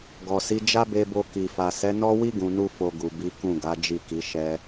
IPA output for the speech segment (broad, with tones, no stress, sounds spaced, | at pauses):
ɡ ɔ˨ s i˨˦ d͡ʒ a˦ b e˧ b o˧ k i˨ f a˨ s ɛ˨˦ n ɔ˦ w i˦ ɡ ũ˧ n u˦ f o˧ ɡ u˨ b i˨˦ k ũ˦˨ ɡ a˨˦ d͡ʒ i˦˨ k i˨˦ ʃ ɛ˧